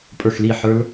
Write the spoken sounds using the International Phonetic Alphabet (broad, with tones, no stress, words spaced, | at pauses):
pʼə˞˥˨xli˥˨ ħə˞˦˥l